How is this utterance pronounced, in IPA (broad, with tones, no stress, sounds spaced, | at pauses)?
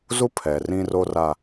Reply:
z u˦ pʰ ɛ˨ r ĩ˦ r o˦ r a˦